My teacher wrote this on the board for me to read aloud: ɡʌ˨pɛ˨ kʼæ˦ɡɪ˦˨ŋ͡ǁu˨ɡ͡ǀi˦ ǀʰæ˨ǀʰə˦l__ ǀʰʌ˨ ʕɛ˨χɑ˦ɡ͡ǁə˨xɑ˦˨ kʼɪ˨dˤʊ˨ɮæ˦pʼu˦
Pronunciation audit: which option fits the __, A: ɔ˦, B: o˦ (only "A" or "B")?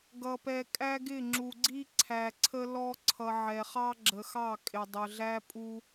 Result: A